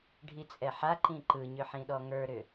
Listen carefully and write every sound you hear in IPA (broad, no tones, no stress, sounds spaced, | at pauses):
ɖʱ i t͡sʼ ɛ ħ a ǃ ĩ ǃ ɯ ɲ ʏ ħ ĩ ɗ ɔ ŋ ə˞ ɾ ʏ